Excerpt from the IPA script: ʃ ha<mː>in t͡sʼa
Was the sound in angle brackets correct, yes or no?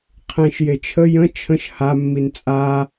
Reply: yes